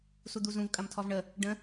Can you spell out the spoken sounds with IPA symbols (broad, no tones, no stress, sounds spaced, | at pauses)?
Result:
s u d̪ u z ũ v kʼ ɐ m tʰ ɔ v ɳ ə | ɖ ə̃